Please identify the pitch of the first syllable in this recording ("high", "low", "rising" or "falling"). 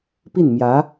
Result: falling